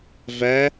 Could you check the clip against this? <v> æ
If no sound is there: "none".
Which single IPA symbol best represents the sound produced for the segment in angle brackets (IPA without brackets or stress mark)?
v